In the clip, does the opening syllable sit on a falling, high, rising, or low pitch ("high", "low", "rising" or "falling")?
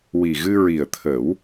low